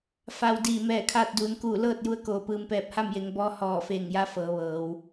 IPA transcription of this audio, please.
fa˩w diː˧˩mɛː˧˩kʰaː˥˨t̚duː˩˧n kuː˧˩lɤː˥˨t̚ ju˧˥ə̯koː˧˩pɯː˧m pɛː˧˩p̚ha˥˨mje˩˧ŋ bɔː˧˥hɔː˧˩feː˧˩ŋja˧˥ fɤː˩˧ʋɤː˩˧w

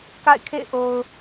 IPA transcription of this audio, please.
ka̰˦˨ɪ̯kʰḛ˦˨ɪ̯ ʔo˨ʊ̯

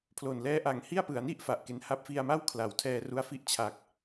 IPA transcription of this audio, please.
pʰlo˨˩nlɛː˦˥ʔa˨˩ŋ hi˥˩a̯pɯ˩˦a̯ni˥˩ʔ fa˨˩ʔke˨˩n ha˦˥p̚fi˧a̯ma˥˩w kʰla˩˦wtʰɛː˧ru˧a̯fi˦˥ʔ t͡ɕʰa˨˩k̚

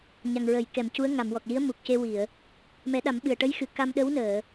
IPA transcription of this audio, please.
ɲa˨˩ŋɹə˨˩˨j kɛ˨˩˨mcu˧˥ə̯ ŋa˨˩˨mwɔ˨˩k̚li˧˥ə̯ mu˨˩k̚ce˧wi˨˩˨ə̯ | mɛ˨˩˦ɗa˨˩˦mɓɨ˨˩ə̯ ʈə˧˥jxɨ˨˩˨ ka˧mɗə˧˥wnəː˨˩˨

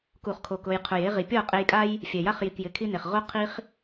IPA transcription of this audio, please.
ku˨χkʰo˨k ʊ˧j qʰʊ˨je˦ʁi˨ pʲɔ˦˨qʼe˧jkʼa˦j | fʲɛ˨ja˦χji˨kjɪ˨˦ kʰi˦ne˨χ ʁo˦ qʰi˦χ

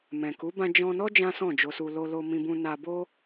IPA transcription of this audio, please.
mɛ̃˨ku˨˦ bã˧d͡ʒɔ̃˧nɔ˦ d͡ʒã˦sɔ̃˦˨d͡ʒo˧su˧ lo˧lo˧ mĩ˧bũ˧ na˧bo˦

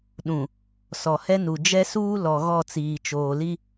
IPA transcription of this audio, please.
ɗũ˨ | sɔ˨hɛ˦nu˨ d͡ʒɛ˦suː˦ lɔ˨ ɣɔ˦˨t͡siː˨t͡ʃoː˨li˦

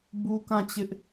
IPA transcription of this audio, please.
bu˦kã˦˨t͡ɕɪ˦ʔ

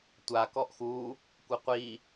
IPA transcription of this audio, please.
tʷa kɔʔxu | kʷɘqʷi

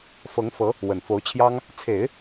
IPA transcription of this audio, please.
fɤ˧˥ŋfɤ˧˥ | wə˨˩nfo˧˥ʊ̯t͡ɕʰjɑ˥ŋ | t͡sʰe˨˩˦ɪ̯

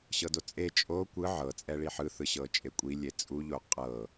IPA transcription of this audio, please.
ɕɤdot͡sʼe t͡ʃʼo kʷɯ ʕɤ t͡sʼɛɭiħɯ θɯɕɤt͡ʃʼekʷʼi lʲet͡sʼu ʎoqʼɤ

